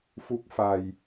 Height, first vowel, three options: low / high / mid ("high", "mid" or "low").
high